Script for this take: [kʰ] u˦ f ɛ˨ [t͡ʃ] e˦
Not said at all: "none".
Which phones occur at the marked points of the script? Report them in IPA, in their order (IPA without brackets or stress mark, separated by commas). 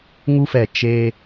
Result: ŋ, t͡ʃ